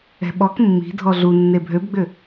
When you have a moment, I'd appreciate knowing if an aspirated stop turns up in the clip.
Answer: no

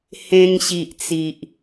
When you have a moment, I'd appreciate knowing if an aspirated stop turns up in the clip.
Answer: no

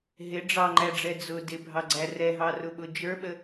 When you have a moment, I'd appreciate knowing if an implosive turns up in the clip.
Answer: yes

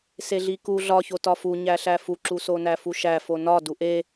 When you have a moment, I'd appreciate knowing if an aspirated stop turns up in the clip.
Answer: no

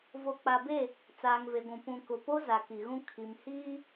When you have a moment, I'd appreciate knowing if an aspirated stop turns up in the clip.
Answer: yes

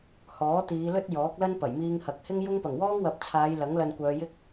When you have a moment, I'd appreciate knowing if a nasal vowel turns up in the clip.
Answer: no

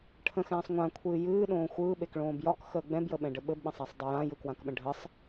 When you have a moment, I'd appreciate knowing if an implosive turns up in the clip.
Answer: yes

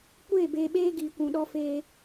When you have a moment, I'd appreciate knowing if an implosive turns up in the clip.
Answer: yes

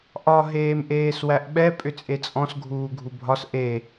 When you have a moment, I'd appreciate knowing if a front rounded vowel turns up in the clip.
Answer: yes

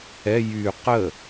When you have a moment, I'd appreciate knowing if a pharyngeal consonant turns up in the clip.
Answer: no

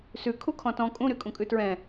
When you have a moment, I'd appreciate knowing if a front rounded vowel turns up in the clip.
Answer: yes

